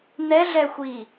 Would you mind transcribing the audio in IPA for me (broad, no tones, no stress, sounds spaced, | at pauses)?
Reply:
n̪ ɛ ɮ ɛ xʷ iː